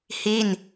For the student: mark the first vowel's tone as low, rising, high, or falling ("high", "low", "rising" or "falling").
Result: falling